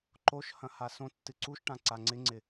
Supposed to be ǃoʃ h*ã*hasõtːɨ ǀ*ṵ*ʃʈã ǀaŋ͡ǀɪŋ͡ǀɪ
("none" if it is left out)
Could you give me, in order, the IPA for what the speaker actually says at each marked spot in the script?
ɐ̃, u

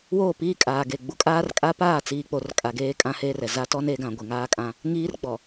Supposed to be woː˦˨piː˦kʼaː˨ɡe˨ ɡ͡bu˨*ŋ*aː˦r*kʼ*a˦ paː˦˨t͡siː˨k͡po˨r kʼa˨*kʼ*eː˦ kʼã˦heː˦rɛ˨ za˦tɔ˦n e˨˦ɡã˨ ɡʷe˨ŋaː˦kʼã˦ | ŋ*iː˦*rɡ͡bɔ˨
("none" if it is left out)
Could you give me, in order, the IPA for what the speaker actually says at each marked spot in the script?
kʼ, kʼ, ɡ, iː˦

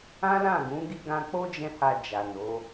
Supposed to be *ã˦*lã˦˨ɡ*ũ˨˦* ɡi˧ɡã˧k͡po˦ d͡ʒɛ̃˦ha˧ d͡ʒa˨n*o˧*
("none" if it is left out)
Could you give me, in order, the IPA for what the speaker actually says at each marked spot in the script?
ã˦, ũ˨˦, o˨˦

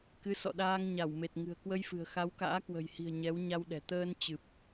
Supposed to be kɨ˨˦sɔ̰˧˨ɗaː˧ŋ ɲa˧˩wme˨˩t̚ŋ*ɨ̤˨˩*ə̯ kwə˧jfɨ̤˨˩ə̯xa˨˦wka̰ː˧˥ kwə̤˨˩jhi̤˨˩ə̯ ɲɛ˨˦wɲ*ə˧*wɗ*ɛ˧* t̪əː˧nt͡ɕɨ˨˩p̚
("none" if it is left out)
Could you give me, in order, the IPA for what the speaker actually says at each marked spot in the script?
ɨ̤˨˩, a˧, ɛ̤˨˩

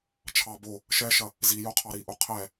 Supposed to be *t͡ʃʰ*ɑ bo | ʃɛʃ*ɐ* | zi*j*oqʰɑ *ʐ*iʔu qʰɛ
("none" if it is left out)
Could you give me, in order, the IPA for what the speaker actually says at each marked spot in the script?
t͡ʃʰ, ɐ, j, ɾ

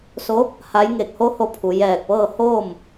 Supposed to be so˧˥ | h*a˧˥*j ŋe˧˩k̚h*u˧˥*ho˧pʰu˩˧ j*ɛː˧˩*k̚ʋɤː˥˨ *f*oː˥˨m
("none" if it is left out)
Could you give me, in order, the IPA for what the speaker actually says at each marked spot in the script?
a˧˥, o˧˥, ɛː˧˩, h

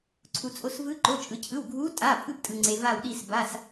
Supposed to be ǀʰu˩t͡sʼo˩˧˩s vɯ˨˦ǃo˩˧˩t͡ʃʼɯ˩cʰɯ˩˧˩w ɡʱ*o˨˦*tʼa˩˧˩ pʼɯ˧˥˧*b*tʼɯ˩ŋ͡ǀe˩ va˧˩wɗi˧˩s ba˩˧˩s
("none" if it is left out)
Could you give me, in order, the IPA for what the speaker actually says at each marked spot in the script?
u˨˦, b

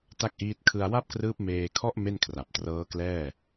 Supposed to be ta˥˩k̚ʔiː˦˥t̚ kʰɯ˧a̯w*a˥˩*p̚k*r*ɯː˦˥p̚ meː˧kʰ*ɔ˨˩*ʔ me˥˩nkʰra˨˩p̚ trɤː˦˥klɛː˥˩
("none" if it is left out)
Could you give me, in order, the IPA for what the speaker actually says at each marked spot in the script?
a˥˩, r, ɔ˥˩

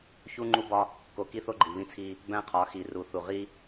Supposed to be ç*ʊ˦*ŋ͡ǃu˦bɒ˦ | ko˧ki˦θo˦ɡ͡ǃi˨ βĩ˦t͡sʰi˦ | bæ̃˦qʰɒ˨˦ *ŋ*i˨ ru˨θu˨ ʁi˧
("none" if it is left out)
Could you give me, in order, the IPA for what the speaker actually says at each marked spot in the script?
u˦, x

